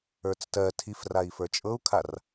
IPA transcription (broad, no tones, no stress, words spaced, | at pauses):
ə˞t͡stɜ tʰifrai̯fə˞ t͡ʃʼɤu̯kʰar